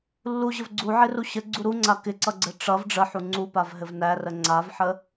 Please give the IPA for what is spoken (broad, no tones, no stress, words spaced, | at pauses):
lːuʑəv ɡ͡ǀuʕɪru ɕəɡ͡ǀu ɾuŋ͡ǀa kɪǀʌɡ͡ǀɘ ʈ͡ʂʌv ɖ͡ʐəħu ŋ͡ǀupavɦɘv nærə ŋ͡ǀavħə